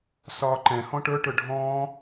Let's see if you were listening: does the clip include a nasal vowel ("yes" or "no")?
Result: yes